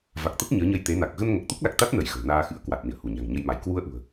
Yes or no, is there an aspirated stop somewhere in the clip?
no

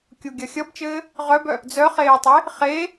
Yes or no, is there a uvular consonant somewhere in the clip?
yes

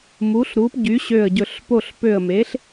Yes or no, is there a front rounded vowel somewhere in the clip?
yes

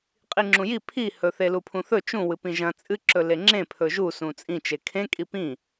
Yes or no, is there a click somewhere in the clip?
yes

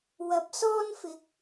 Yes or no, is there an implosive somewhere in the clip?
no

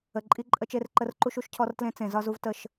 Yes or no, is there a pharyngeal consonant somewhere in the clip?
no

